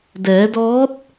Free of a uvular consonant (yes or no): yes